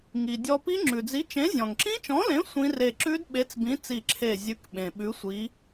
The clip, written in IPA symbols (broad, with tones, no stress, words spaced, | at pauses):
ŋi˩ dʲɔ˧pi˦˥ ŋ͡ǁʉ˩d͡zi˨˥t͡ʃẽ˨˥ zʲɔ̃˩ŋǁĩ˦˥t͡ʃɔ̃˨˥lẽ˨˥ sʷĩ˦˥re˧˩ ǁʉ˦˥dɓe˨˥t͡sbĩ˨˥ t͡si˧˩ǁʰe˧˩zʲʉ˨˥k ɓẽ˩ɓʉ˨˥sʷi˨˥